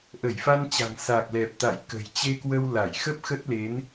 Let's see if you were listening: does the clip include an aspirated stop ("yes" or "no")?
no